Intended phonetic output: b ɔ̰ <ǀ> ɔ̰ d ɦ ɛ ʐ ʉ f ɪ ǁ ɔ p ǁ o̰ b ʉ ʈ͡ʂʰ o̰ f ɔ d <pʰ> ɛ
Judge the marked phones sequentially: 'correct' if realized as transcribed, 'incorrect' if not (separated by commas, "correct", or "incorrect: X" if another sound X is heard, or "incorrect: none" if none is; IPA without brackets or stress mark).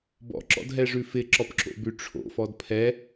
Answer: incorrect: ǁ, correct